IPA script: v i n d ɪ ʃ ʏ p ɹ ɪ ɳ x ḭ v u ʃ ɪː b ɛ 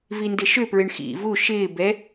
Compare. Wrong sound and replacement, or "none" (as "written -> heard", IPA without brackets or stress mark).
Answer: none